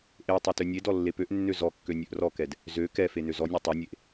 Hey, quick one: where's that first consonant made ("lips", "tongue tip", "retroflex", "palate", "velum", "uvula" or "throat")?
throat